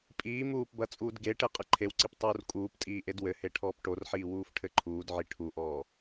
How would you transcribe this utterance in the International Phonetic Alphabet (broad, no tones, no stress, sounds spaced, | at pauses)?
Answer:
pʼ iː m uː p b ɐ t͡sʼ uː d ɡ e ʈ e qʼ ɘ ǃʰ e w ǀ i p tˤ uː r kʼ uː p tʼ iː ʔ e d w ɘ h e ʈʰ ɔː p ʈ o r ħ iː w uː f ʈʰ ɘ ǃʰ uː d ʕ i ʈʰ u ʔ ɔː